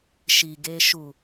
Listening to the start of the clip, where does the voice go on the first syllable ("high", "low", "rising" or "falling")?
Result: low